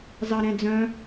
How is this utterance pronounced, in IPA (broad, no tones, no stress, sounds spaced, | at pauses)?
z ɑ ɾ ɛ̃ d͡z œ̃